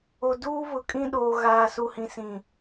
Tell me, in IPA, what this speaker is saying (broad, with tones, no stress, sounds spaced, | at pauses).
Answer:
o˨ d uː˦ β ʊ˨ kʼ ĩ˦ ɗ oː˨ ɣ aː˨ s u˨ h ĩ˨ s ĩ˨